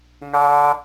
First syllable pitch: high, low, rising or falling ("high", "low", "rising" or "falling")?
high